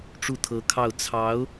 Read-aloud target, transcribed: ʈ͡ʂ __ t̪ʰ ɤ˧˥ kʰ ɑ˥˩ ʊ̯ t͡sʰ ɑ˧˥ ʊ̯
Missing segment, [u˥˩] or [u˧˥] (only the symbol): u˥˩